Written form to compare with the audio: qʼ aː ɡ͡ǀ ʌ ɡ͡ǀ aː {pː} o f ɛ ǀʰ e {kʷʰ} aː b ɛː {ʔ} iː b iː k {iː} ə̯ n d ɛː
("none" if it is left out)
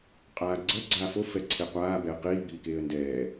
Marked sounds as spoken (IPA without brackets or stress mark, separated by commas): f, qʷ, q, eː